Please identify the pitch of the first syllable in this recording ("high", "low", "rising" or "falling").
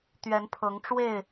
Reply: rising